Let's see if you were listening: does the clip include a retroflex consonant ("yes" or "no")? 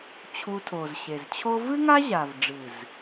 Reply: yes